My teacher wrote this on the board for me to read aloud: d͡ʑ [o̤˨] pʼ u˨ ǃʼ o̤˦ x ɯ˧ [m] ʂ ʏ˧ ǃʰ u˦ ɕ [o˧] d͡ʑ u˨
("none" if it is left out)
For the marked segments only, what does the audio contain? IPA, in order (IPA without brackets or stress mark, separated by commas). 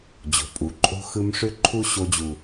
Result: o̤˨, m, o˧